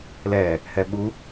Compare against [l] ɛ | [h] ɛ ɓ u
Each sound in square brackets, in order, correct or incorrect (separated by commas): correct, correct